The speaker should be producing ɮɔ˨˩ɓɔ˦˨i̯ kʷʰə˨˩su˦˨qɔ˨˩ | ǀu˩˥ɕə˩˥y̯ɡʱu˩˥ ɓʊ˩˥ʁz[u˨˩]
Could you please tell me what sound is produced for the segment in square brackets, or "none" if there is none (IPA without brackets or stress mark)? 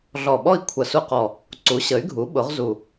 u˨˩